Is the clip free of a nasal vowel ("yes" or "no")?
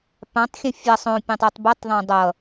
no